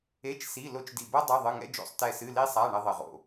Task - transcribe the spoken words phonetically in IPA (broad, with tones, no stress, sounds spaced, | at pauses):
e˧˥˧ t͡ʃ s i˧˥˧ l o˥ t͡ʃ d i˦˨ b ɐ˥ dˤ ɘ˧˥˧ ðˤ ɨ˧˥˧ ŋ ɛ̰˥ d͡ʒ o̰˦˨ sˤ t ɛ˦˨ s ɨ˧˥˧ l i˥ sˤ a˧˥˧ ɳ ɘ˥ ðˤ ɘ˦˨ ʁ o̰˦˨